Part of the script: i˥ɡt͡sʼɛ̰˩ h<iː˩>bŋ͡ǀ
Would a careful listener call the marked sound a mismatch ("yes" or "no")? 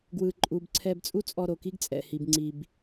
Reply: yes